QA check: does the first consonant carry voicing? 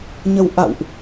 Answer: yes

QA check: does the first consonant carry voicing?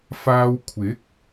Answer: no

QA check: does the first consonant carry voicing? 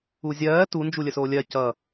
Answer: yes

